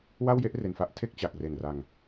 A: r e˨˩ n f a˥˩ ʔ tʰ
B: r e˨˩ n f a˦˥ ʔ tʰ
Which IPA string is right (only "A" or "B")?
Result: B